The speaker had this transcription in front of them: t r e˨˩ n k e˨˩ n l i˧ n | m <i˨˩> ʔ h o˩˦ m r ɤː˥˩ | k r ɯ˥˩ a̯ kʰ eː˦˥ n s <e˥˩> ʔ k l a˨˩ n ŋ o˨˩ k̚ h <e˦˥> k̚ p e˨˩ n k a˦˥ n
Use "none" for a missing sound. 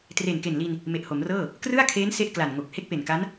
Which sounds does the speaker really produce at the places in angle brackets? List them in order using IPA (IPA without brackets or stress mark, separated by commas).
e˨˩, e˥˩, e˥˩